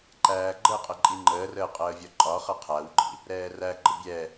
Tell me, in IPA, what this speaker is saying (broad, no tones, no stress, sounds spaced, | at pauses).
ǃ æː ɡ͡ǃ ə qʼ ə ǃʼ i ŋ͡ǃ əː r əː qʼ əː vʲ ɒ ǃʼ ɒ χ ʌ qʰ æ w ɡ͡ǃ ḭ | ɾ ɛː r æ ɡ͡ǃ ə bʲ ɛ